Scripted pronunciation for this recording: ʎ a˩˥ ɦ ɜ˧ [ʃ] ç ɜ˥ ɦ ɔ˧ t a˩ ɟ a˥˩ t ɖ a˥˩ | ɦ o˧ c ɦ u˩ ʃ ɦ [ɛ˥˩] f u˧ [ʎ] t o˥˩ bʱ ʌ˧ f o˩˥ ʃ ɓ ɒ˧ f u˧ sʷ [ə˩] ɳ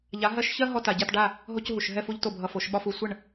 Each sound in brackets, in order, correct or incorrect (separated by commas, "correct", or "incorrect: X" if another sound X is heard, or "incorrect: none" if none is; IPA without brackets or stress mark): correct, correct, correct, incorrect: ə˥˩